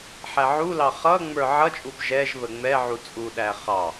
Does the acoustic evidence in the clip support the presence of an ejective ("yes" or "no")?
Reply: yes